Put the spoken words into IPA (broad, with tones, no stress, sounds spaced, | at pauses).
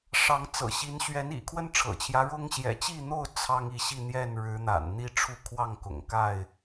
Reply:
ʂ ɑ˨˦ ŋ t͡s ɤ̰˨˩ ɕ i˨˦ n ɕ ɥ ɛ˨˦ n ḭ˨˩ kʰ w ə˦ n ʈ͡ʂʰ ɤ̰˨˩ t͡ɕʰ j ä˦ ɻ ʊ˦ ŋ ɕ j ɛ̰˨˩ t͡ɕ i˥˨ n̪ o˥˨ ʊ̯ t͡sʰ ɑ˦ ŋ i˥˨ ɕ i˥˨ n̪ j ɛ˥˨ n ɻ ɻ̩˨˦ n̪ a̰˨˩ n n̪ i˦ ʈ͡ʂʰ u˥˨ kʰ w ɑ˥˨ ŋ k ʊ̰˨˩ ŋ k a˥˨ ɪ̯